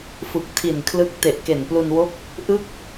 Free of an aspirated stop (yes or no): no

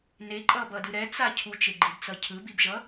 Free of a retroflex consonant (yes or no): yes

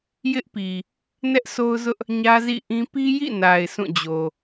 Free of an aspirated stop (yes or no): yes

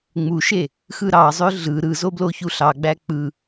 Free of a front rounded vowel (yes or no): no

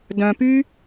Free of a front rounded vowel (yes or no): no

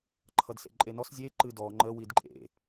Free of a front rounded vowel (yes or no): yes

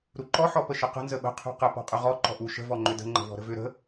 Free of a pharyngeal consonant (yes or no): no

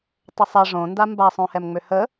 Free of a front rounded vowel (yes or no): no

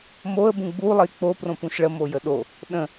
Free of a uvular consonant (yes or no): yes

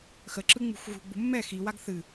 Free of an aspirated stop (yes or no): yes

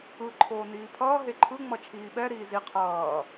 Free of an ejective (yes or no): yes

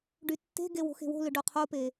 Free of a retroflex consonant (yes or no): no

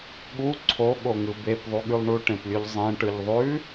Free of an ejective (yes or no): yes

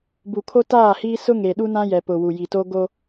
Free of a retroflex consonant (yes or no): yes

